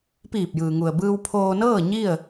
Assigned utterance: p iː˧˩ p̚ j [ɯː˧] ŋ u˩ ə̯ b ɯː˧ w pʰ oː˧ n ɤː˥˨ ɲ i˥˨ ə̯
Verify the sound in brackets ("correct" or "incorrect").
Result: incorrect